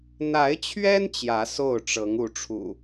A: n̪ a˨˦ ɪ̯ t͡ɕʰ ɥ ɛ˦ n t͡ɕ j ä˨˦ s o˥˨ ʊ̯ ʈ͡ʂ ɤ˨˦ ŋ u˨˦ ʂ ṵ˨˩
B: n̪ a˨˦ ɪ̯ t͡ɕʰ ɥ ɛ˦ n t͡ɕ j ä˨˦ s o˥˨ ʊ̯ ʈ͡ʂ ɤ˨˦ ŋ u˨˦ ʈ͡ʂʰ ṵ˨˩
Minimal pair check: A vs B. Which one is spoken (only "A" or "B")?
B